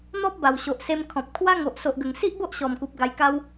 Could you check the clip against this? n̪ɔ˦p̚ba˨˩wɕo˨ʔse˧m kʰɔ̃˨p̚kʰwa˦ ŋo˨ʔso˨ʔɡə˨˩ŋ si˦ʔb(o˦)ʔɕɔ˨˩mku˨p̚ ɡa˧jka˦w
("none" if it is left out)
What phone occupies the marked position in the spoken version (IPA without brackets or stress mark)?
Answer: o˦